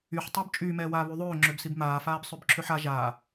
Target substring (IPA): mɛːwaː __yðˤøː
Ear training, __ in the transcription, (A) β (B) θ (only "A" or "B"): A